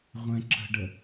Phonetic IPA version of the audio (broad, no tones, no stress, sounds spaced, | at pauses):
ʁʷ ɛ̃ ǁ ə̤ ɖ ə